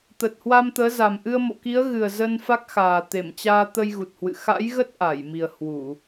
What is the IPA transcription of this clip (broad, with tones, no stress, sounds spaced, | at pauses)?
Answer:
t̪ ə˨˩ t̚ h w a˧ m t̪ əː˨˦ z a˨˩ m ʔ ɨ˧ ə̯ m o̰˧˨ k i˨˦ ə̯ ɣ ɨ˨˩ ə̯ z ə˧ n f a˦˥ k̚ x aː˨˩ t̪ e˧˩ m t͡ɕ aː˧ t̪ ə˧ j ɣ u˨˩ t̚ h w ɨ̰˧˨ x a̰˧˥ j ɣ ə˦˥ t̚ ʔ a˧˩ j m i˨˩ ə̯ h w u˧˩˨